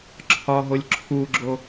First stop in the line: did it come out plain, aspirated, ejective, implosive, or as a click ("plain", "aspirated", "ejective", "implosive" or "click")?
click